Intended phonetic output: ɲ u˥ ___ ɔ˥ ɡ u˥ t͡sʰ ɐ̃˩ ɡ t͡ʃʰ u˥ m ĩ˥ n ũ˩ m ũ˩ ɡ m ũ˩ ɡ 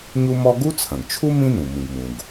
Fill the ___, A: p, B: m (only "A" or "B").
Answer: B